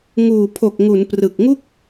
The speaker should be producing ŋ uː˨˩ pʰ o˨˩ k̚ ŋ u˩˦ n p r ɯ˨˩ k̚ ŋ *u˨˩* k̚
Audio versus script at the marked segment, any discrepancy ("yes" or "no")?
yes